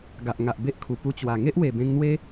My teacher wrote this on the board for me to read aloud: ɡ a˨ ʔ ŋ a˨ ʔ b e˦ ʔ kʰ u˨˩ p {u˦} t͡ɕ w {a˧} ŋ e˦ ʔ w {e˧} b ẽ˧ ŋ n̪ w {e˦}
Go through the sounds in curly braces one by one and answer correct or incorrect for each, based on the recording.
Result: incorrect: u˧, incorrect: a˨˩, incorrect: e˨˩, correct

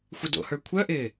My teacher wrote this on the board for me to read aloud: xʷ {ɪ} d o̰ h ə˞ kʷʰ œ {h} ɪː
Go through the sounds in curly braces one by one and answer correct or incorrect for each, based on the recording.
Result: correct, incorrect: ʔ

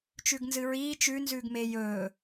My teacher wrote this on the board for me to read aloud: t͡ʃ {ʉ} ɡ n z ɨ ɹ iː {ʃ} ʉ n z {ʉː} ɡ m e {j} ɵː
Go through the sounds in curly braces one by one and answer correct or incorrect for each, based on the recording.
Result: correct, incorrect: t͡ʃ, correct, correct

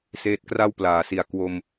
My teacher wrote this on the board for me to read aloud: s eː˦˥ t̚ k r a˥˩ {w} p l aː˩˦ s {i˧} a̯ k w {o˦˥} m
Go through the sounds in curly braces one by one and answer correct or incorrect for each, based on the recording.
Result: correct, incorrect: i˨˩, incorrect: o˧

